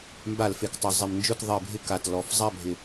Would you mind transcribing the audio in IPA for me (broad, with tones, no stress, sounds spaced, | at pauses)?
m b a˧˩˧ l f e˩˧ k tˤ ʊ˧˩˧ zˤ e˧˩˧ m n d͡ʒ ʊ˦˨ t ðˤ e˧˩˧ bʱ ɪ˦˨ k a˨˩ t l ɔ˧˩˧ f zˤ a˦˨ bʱ ɪ˨˩